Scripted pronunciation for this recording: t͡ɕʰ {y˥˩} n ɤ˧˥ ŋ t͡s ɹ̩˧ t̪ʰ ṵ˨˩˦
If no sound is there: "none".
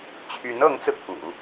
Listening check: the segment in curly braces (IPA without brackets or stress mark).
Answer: y˧˥